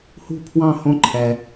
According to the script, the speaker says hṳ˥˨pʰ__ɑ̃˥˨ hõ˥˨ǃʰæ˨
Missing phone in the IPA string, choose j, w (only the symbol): w